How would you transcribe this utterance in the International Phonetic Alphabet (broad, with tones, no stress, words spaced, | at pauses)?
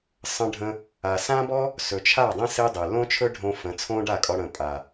sˤə̃˧ɖʱə̃˧ | a˨sã˦bɔ˦ | sɵ˨t͡ʃʰa˦˨dˤẽ˦ se˦dˤe˨ lõ˦t͡ʃʰɵ˦ɖʱõ˧ fə̃˨˦t͡sʰõ˦ɖa˦˨kʼɔ˧ ɽə̃˨pʼa˨